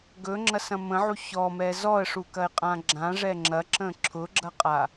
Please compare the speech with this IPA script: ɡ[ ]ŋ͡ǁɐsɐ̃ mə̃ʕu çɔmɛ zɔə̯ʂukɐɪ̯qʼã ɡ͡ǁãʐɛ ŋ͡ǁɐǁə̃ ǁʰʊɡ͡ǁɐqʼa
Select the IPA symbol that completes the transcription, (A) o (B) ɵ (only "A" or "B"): B